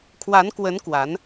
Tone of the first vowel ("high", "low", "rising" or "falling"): rising